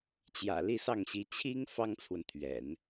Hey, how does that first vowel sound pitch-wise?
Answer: low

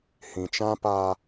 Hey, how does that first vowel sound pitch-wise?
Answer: low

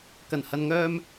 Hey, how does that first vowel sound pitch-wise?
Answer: low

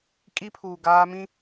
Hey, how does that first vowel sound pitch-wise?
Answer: high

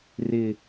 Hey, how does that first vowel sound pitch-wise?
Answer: low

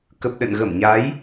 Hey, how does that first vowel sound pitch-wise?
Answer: low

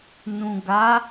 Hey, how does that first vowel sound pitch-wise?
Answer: low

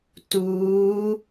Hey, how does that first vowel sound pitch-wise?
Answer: rising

